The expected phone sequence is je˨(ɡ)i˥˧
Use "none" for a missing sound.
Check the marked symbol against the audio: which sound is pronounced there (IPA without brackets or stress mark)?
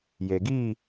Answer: ɡ